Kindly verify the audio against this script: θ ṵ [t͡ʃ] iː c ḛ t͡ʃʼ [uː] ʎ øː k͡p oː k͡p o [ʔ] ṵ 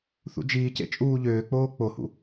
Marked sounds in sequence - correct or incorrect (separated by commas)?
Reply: incorrect, correct, incorrect